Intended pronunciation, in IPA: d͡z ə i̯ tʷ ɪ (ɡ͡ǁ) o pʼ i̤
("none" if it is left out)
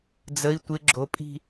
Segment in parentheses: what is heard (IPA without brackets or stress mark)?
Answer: ɡ͡ǁ